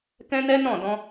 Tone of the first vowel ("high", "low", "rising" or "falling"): high